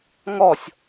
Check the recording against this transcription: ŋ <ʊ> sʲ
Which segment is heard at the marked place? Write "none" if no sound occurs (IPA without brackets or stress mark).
ɔ